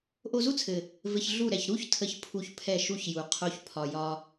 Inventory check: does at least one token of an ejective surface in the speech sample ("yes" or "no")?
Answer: no